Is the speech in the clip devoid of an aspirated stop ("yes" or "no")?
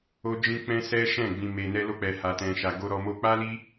yes